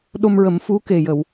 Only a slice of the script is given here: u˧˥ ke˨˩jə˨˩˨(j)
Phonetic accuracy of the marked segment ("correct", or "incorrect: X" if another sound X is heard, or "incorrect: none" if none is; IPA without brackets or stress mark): incorrect: w